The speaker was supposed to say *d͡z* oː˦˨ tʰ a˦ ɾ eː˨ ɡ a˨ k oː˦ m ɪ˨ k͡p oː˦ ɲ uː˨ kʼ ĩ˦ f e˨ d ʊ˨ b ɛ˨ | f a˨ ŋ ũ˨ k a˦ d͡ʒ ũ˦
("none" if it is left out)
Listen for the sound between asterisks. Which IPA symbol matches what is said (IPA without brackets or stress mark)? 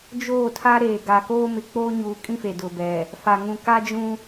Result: d͡ʒ